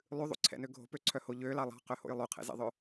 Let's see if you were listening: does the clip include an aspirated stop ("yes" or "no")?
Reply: yes